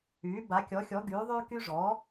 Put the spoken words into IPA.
yː˩˥ ba˩˥kʲɔ˩˥xʲɔ˩˥ ɡyː˩˥ðˤyː˦ ky˦ʐɔː˩˥

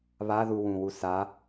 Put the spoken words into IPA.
βaðu wũwu sa

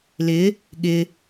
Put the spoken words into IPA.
lɪ | ɠɪ

